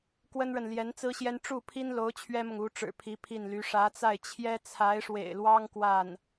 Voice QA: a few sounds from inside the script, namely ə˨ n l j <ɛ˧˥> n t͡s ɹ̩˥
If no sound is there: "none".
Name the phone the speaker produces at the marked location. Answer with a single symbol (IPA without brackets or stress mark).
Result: ɛ˧˥